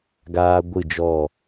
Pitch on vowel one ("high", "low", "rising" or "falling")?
high